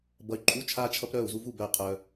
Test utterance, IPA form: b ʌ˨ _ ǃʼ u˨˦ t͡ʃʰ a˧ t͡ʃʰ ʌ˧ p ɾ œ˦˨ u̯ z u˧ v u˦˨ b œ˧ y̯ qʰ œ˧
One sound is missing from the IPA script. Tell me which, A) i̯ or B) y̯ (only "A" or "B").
B